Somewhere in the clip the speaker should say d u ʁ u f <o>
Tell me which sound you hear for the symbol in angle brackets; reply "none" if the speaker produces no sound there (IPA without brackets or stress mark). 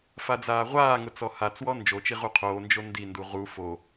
o